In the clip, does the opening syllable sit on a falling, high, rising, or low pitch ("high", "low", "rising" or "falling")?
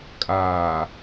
low